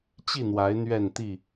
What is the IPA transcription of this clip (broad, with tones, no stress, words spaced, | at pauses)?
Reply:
t͡ɕi˥˨n̪wa˨˦ɪ̯ n̪ɥɛ˥˨n t̪i˥˨